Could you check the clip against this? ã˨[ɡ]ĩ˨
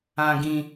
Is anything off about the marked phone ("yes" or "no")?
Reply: no